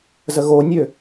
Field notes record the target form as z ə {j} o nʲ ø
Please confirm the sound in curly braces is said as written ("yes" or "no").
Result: no